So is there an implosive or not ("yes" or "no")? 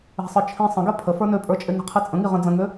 no